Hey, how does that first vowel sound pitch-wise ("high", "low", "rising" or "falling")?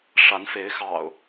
rising